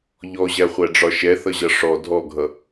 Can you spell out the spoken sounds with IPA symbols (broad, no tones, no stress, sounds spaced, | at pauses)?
ʎ ɔ ʑ æ χʷ æ ɖ͡ʐ ɒ ʃ ɛ θ ʌ ʑ ʌ ʂ ɔ dʱ ɔ ɡʱ ʌ